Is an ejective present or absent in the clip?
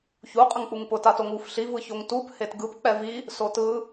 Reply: present